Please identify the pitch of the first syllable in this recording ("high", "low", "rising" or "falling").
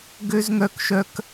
high